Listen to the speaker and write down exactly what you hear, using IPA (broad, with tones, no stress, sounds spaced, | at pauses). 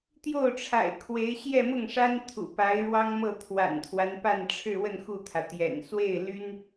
t̪ j o˥˩ ʊ̯ ʈ͡ʂʰ a̰˨˩ ɪ̯ kʰ w e˧˥ ɪ̯ ɕ j ɛ˥˧ m ʊ˥˩ ŋ ʂ a˥ n t̪ʰ ṵ˨˩ p a˧˥ ɪ̯ ɻ w ɑ˥ ŋ m ɤ˥˩ t̪ʰ w a̰˨˩ n t̪ʰ w a˦ n p a˥˧ n ʈ͡ʂʰ ɻ̩˥˧ w ə˥˧ n x u˥˩ t̪ʰ ä˩ t̪ j ɛ̰˨˩ n s w e˥˩ ɪ̯ l y˥ n